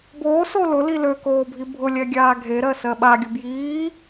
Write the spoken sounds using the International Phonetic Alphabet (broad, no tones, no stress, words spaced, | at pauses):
boː solʊli lø koːbʱibʱʊlʲɛ ɡʲaːɡʱeɾɜ sɜɓaɡʲʊ bjiː